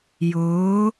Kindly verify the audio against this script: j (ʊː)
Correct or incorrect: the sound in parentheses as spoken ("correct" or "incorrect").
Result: correct